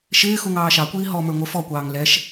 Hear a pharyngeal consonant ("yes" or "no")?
no